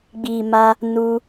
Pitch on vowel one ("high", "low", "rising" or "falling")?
low